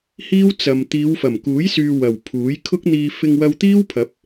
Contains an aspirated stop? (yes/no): yes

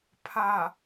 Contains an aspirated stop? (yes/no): yes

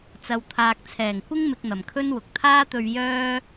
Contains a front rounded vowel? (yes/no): yes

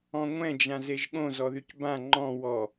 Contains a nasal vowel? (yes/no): yes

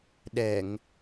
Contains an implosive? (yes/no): yes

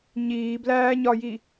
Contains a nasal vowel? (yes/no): no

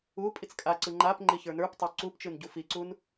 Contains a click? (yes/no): yes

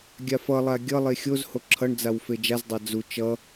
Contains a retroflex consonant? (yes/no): yes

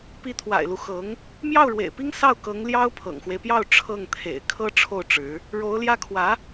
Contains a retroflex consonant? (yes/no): yes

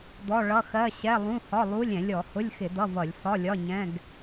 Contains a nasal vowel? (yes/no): yes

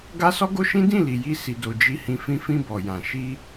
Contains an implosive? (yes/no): no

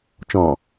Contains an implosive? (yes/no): no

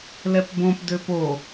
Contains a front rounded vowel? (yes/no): yes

